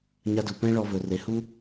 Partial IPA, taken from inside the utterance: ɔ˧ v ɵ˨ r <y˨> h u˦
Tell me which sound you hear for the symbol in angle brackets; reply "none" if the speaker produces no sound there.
e˨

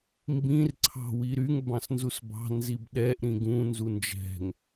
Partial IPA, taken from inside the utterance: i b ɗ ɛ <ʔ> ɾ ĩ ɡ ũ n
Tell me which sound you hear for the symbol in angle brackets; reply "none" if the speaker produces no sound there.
ʔ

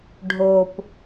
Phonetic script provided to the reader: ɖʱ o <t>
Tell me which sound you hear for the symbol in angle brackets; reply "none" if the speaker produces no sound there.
p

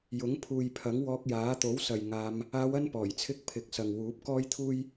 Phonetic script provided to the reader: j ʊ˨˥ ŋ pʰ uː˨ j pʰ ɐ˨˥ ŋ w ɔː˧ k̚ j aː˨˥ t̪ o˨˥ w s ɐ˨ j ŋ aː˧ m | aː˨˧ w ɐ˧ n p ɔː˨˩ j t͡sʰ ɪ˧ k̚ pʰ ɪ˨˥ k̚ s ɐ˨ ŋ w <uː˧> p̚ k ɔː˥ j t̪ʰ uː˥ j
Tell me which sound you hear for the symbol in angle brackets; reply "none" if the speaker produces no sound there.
uː˨˥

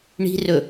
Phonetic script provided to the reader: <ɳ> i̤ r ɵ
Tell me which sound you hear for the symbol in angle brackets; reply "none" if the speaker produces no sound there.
ɳ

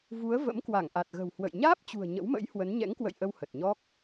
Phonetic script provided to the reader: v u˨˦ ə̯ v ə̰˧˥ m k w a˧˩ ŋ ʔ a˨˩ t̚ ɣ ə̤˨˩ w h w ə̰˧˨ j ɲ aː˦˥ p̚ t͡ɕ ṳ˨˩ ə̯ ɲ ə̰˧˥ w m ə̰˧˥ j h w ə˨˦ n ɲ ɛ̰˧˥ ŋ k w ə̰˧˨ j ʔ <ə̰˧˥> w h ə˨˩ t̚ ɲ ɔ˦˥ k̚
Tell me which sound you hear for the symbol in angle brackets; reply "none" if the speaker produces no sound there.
ə˧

